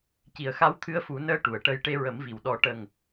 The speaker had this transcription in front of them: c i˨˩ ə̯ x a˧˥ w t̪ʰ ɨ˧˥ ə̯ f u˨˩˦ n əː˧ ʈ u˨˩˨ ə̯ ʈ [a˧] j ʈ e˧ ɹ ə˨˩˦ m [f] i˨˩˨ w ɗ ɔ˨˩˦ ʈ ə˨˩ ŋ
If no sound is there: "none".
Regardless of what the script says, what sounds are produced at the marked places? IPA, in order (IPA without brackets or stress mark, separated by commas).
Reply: ə˧, v